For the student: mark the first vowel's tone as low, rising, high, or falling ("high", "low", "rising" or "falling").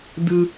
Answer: low